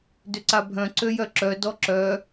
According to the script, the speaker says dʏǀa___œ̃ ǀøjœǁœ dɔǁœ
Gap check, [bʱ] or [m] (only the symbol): bʱ